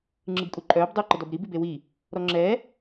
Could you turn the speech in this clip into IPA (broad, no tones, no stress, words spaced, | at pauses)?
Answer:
ŋ͡ǁɯbkʼuǃʼœːb dˤuːǃədɔbɾi bibewi | ɾɔŋ͡ǁɛ